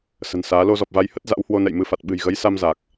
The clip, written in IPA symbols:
s ə̤˨˩ n s aː˨˦ l o˧ z ɔ˨˩ p̚ v a˨˦ j h ə˦˥ t̚ z a̰˧˥ w h w o˧ n ɛ̰˧˨ j m ɨ˨˦ f a˨˩ t̚ ɓ ɨ̤˨˩ j ɣ ə˨˦ j s a˧ m z aː˨˩ k̚

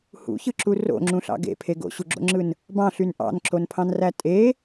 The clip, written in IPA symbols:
h ṵ ç ɯ ǁ u r o̰ ŋ͡ǁ ũ ɬ ɑ̰ ɡ ḛ pʰ e ɡ o̰ ɕ u ɡ͡ǁ o̰ ŋ͡ǁ ɯ n | b ɑ̃ ɬ y n ʔ ɑ̰ n ǁ o n pʰ ɑ̃ n r æ tʼ e

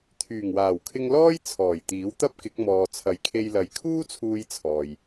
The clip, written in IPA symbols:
t̪ʰ yː˨˩ ŋ w aː˨˩ w kʰ ɪ˧ ŋ l ɔː˥ j t͡sʰ ɔː˨˩ j t̪ iː˨˥ w t̪ ɐ˥ p̚ k ɪ˨˥ k̚ m ɔː˨ t͡sʰ ɐ˨˧ j kʰ e˧ j l ɐ˨˧ j kʰ uː˥ t͡sʰ uː˧ j t͡sʰ ɔː˨ j

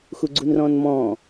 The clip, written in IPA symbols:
x u ɡ͡ǀ u n r ɔ̃ n m ɔ̃

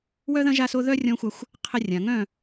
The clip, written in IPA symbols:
w œ˦ ð ɐ̃˦ ʒ a˦ s o˦ ð œ˦ rʲ ɔ̃˦ xʷ a˦ xʷ | qʰ ɪ˦ rʲ ã˨ ŋ œ̃˦˨

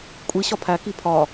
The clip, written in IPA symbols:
kʷʼ i ɕ ɒ pʰ æ k i pʰ ɒ

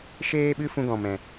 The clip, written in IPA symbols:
ʃ eː˧ ɓ ɨ˧ f ũ˧ ɡ ɔ̃˨ m ɛ̃˨

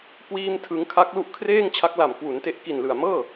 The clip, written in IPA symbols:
k w iː˥˩ m tʰ ɯ˦˥ ŋ kʰ a˦˥ k̚ l u˦˥ ʔ kʰ r eː˥˩ ŋ t͡ɕʰ a˦˥ k̚ l a˨˩ m k w u˩˦ n t e˦˥ ʔ k i˨˩ n l ɯ˨˩ a̯ m ɤː˥˩

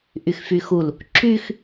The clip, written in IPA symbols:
ʔ y x f y x u l | ǁ y x

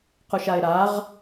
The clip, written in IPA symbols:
q u ʃ a ɪ̯ ɾ a ʁ

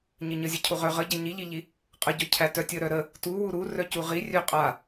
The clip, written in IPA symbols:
ɲ ə ɲ ə zʲ ə cʰ u ʁ œ ʁ ə ɟ æ ɲ i ʎ i ʎ i | qʼ ə ɟ œ cʰ æ t œ tʲ ə ɾ œ ɾ ə | t u w u ɾ u r œ c u ʁ i rʲ œ qʼ a

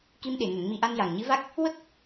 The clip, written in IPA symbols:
k i˧ m ɗ e˨˩˨ ŋ ə˨˩˦ ŋ m i˧ ʔ a˧ n j a˨˩ ŋ ɲ ɨ˧˥ v a˦˥ k̚ | w ə˦˥ k̚

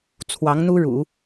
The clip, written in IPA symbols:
t͡sʰ w ɑ˧˥ ŋ n̪ u˥ ɻ ṵ˨˩˦

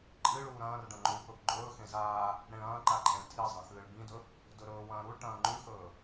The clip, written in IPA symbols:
ǃʼ ɨ ɭ uː ɾ ɐ̃ː r ɖ ɐ̃ ŋ͡ǃ uː p ɵ p ɡ͡ǃ ɵː x ẽ z aː | ɽ ẽ ɭ ɐ̃ː ǃ a ǃʼ ẽ ɭ tʰ i zˤ ɐ̃ x ɨː ɭ b ĩ d ɵ | d ɵ ɾ ɵː w ɐ̃ː ɾ u ɭ ʈ ɐ̃ː ŋ͡ǃ ʉ x ɵː

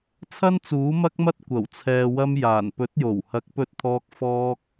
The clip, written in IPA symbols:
t͡sʰ ɐ˥ n t͡s uː˨˥ m ɐ˥ k̚ m ɐ˥ t̚ kʷ ɐ˨˩ w t͡sʰ ɛː˨ w ɐ˧ m j aː˨˩ n p ɵ˨˥ t̚ j o˨˩ w h ɐ˨˥ k̚ p ɵ˧ t̚ t̪ʰ ɔː˧ k̚ f ɔː˥ k̚

